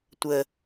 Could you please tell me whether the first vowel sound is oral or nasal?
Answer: oral